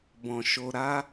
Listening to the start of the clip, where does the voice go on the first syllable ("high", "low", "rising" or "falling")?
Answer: low